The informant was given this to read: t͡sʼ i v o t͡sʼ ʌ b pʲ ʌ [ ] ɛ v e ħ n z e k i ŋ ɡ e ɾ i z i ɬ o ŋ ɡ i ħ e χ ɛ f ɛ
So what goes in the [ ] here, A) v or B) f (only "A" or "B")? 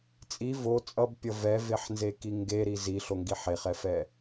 A